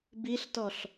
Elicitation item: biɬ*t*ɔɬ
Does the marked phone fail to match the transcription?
no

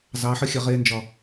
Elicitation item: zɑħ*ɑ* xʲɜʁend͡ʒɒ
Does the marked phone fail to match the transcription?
yes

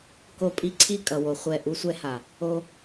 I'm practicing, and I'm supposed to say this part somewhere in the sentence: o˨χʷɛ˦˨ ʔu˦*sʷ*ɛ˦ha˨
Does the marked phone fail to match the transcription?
no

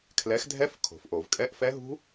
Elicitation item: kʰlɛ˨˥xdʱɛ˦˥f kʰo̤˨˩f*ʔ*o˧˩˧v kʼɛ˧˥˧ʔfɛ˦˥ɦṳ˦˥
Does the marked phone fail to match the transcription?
no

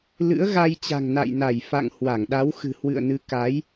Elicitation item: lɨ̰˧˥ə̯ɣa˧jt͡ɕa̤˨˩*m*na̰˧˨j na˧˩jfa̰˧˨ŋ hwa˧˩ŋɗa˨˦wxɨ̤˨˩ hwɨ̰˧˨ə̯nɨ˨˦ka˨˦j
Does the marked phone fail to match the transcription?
yes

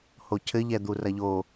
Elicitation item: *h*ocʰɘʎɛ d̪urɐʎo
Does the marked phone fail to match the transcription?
no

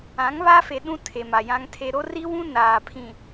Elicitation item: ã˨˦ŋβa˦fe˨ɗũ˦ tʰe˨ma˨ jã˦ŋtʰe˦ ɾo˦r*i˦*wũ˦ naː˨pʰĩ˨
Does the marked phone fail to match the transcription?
no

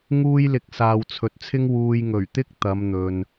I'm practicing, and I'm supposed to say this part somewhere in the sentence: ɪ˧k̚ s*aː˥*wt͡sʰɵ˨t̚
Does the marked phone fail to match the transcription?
yes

